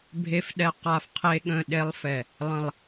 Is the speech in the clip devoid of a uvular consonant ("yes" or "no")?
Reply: no